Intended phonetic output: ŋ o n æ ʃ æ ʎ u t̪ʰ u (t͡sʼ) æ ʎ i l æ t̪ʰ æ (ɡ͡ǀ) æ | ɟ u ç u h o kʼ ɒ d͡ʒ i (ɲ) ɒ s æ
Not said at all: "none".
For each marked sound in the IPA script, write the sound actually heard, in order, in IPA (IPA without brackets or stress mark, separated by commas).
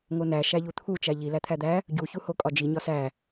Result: t͡ʃ, d̪, ɲ